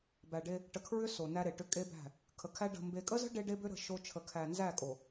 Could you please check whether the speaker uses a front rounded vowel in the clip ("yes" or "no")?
yes